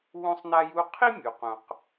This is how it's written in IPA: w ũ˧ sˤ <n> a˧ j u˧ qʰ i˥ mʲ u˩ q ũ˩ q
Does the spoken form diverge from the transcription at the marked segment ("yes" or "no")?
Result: no